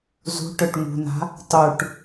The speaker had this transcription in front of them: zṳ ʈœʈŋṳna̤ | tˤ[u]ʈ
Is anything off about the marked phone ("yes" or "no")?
no